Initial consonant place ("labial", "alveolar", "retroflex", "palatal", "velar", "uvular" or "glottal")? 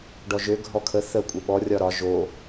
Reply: retroflex